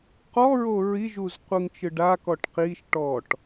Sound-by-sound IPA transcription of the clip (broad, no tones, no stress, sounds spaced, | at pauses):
q ɔ ɹ o ɹ i ʒ u z qʷ ɯ ŋ t͡ʃ ɯ ɖ a k ɔ ʈ q i ʃ ʈ ɔ ʈ